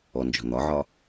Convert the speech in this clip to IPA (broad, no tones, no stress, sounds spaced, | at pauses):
ɔ n d͡ʒ ɔ̤ n̪ ɒ ʕ ɒ